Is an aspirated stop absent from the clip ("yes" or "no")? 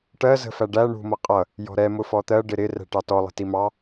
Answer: yes